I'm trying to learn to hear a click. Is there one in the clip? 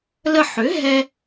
no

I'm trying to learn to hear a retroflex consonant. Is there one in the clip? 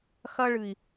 yes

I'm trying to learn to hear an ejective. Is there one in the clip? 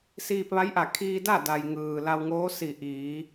no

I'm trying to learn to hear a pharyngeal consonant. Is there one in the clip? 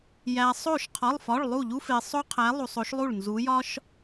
no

